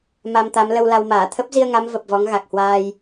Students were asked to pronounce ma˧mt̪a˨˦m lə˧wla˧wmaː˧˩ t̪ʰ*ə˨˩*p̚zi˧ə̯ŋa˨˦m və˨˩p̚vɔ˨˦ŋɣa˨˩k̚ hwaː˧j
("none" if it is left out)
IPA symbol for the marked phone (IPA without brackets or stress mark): ə˦˥